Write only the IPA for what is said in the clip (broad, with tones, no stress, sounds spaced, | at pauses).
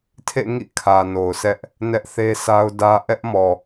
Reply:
tʰ ḛ˦˨ ŋ ḭ˦˨ kʰ ä˨ n o˨ ʊ̯ s ɛ˦ ʔ | n ɛ˦ ʔ θ e˦ s a˦ ʊ̯ d ä˦ ʔ ɛ˦ ʔ m ɔ˨